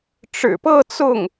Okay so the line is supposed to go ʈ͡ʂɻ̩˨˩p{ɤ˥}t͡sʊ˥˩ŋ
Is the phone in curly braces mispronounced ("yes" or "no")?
yes